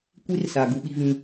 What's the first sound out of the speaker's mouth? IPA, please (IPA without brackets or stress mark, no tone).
kʷ